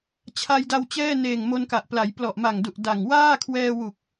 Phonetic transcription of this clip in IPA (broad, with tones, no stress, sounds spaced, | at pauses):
t͡ɕʰ a˧ j d a˧ w t͡ɕ ɛː˥˩ n eː˨˩ ŋ m o˧ n k a˨˩ ʔ p l a˩˦ j p l ɔ˨˩ ʔ m a˨˩ ŋ d u˨˩ ʔ d a˨˩ ŋ w aː˥˩ kʰ w ɛː˧ w u˨˩ k̚